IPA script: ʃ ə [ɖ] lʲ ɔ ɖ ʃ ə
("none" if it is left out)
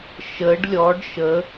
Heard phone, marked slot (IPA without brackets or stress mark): ɖ